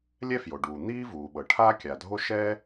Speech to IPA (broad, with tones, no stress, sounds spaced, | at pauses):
lʲ ɛ˥ f j o˩ ɖ uː˩ n̪ iː˥ v uː˩ ɓ ɤ˩ ʈʰ aː˥ kʲ a˩ dʱ o˥ ʃ ɛː˥